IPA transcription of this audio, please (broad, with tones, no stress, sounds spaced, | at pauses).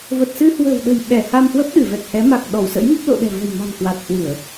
v ə˨˩ t̚ s ɨ˧ h w ə̤˨˩ w ɗ ə̤˨˩ j ɓ ɛ˧˩ h a˧ m h w ə˦˥ p̚ ɗ ɨ˧˩ v ɛ˨˩ k̚ h ɛ˨˦ m a˨˩ k̚ ɗ ɔ˧˩ w s ə̰˧˥ j m ə˦˥ p̚ l o̰˧˨ ɗ ɛ̤˨˩ v ə̤˨˩ j m a̤˨˩ n k w a˨˩ t̚ h w ɨ˧˩˨ ə̯